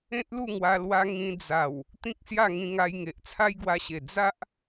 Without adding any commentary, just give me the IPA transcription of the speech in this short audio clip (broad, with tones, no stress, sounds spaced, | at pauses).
ẽ˦ t̚ l u˥˧ ŋ w a˧ l w a˧ ŋ ĩ˧ d͡z a˨˩ w | t̪ ĩ˦ k̚ s j a˥˧ ŋ ĩ˧ ŋ a˧ j ŋ e˨ ʔ t͡sʰ a˦ j ɡ w a˧ ɕ e˨˩ d͡z a˦ ʔ